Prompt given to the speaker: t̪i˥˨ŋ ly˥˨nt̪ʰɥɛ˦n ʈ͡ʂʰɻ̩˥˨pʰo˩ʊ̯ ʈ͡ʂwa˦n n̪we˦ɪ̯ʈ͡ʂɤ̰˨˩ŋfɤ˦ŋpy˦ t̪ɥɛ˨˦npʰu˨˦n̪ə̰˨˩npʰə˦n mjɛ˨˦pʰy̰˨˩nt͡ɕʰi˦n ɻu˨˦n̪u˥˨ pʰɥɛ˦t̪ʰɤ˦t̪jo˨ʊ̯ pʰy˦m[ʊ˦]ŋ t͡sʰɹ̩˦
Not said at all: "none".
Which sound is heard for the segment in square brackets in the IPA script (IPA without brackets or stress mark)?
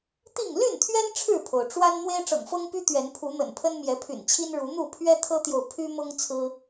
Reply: ʊ˦